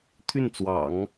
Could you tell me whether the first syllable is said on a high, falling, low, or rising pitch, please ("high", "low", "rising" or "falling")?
falling